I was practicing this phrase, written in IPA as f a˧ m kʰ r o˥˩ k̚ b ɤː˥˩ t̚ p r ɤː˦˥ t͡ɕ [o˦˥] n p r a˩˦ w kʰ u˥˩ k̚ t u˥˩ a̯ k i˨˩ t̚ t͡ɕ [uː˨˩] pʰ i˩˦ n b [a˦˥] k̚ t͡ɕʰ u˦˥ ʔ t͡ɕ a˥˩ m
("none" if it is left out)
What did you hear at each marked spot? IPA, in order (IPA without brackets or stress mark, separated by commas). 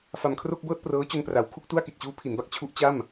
o˧, uː˦˥, a˦˥